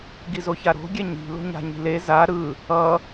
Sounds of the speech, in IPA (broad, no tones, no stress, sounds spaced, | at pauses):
ɡ i z o ç a ɾ o̤ ɡʲ ɛ ɲ i̤ l o̤ ɲ a̤ ɲ i̤ l e z a ɾ ɯ | ʌ